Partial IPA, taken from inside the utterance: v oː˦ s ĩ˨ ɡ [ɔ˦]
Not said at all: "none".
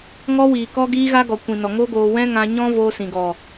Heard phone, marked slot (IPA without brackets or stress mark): ɔ˨